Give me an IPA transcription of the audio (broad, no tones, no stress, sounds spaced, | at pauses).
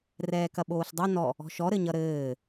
r ɛː k ɐ ɓ oː ɬ dˤ ʌ n ɔ | ɔ̤ ʃ ɔ ɾ ɘ ɲ ʌ ɾ ɘː